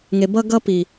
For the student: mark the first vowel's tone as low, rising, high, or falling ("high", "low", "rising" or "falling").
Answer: low